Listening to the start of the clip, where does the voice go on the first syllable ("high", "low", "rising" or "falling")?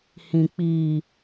low